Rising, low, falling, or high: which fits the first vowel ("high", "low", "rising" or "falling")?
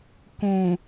low